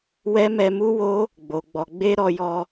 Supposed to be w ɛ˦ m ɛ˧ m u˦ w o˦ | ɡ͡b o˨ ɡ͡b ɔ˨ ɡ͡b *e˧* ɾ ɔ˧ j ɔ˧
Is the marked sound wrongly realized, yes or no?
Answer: no